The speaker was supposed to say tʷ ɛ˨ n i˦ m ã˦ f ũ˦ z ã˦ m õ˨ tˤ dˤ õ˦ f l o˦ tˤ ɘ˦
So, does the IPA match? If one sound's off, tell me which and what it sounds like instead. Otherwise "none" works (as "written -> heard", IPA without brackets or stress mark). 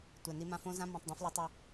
ũ˦ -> õ˦